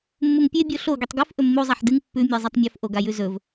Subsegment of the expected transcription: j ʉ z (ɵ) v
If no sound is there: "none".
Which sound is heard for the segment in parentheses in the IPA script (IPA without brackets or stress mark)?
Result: ɵ